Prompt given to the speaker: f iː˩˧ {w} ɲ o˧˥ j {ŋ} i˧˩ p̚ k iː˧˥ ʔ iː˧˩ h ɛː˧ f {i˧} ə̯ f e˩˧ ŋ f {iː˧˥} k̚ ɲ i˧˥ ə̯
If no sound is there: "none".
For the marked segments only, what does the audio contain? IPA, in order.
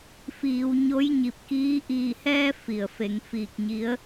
w, ɲ, i˩, iː˧˩

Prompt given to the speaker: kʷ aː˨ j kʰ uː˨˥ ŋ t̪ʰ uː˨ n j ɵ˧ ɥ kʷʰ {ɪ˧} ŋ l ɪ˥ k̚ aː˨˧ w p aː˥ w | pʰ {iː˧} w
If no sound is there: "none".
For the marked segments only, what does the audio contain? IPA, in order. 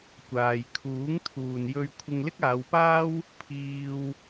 ɪ˧, iː˧

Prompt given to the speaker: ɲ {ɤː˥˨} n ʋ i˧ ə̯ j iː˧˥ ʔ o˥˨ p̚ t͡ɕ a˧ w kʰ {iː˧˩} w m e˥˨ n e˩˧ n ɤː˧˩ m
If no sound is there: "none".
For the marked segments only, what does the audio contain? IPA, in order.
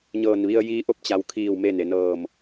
ɤː˧˩, iː˧˩

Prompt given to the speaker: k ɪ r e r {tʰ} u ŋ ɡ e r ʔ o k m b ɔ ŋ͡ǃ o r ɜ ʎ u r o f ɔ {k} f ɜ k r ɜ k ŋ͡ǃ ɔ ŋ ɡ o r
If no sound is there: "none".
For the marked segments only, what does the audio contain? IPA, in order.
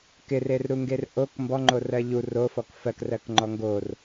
ɾ, k

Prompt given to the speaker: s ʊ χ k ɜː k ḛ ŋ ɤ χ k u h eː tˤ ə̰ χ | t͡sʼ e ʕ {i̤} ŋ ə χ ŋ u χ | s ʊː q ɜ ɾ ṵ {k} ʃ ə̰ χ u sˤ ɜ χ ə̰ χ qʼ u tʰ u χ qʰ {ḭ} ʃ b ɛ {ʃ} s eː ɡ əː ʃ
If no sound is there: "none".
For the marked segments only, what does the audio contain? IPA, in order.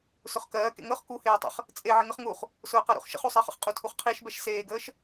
i, χ, i, ʃ

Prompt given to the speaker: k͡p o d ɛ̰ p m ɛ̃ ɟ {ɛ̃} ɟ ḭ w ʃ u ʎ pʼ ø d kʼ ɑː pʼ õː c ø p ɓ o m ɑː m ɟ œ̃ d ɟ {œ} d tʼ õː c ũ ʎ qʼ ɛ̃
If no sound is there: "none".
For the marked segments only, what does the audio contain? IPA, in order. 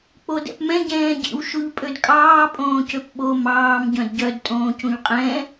ɛ̃ː, œ

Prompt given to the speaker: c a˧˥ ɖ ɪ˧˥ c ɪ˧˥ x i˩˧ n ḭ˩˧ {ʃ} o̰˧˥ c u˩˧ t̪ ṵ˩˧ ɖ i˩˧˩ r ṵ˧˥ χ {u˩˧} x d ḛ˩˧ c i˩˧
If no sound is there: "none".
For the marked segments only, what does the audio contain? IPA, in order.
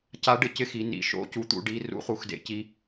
ʃ, u˩˧

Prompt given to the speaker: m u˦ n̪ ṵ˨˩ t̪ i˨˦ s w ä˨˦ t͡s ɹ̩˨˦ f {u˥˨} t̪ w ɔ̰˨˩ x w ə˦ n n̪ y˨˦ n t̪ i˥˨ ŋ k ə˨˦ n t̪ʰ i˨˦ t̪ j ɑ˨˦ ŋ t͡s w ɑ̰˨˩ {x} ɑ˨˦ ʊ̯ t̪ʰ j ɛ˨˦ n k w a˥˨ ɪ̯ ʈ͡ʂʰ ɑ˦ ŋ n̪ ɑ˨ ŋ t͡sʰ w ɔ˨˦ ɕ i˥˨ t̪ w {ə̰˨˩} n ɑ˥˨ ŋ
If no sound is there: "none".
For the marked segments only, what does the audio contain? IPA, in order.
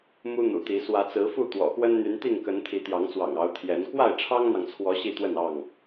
u˥˨, ŋ, ə˥˨

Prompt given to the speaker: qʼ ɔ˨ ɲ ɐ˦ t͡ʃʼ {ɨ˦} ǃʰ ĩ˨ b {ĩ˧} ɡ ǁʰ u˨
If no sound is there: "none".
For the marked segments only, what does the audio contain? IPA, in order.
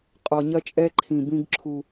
ɛ˦, ĩ˧

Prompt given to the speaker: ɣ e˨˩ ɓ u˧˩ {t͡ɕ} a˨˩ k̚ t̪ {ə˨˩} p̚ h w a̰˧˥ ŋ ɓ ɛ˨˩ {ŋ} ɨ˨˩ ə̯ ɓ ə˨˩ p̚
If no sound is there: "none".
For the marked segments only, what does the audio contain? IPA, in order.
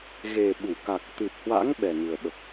k, ɨ˨˩, ŋ

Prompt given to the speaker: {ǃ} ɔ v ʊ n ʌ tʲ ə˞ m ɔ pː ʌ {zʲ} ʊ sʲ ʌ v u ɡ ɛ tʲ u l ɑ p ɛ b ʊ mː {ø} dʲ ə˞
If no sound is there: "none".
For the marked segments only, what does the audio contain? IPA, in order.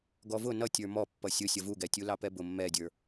ɡ, sʲ, ɛ

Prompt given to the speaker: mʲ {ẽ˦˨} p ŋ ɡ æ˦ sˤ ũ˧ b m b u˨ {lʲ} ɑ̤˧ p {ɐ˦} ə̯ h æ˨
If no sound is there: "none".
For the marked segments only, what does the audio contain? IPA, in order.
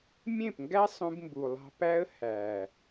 ẽ˦˨, lˠ, æ˦

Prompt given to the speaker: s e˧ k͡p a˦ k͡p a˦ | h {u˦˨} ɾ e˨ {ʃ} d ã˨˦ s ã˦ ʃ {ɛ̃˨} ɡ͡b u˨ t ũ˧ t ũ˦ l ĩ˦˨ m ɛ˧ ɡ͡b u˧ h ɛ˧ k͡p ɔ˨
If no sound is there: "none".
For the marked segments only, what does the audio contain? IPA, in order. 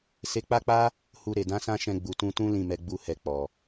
u˧, none, ɛ̃˧

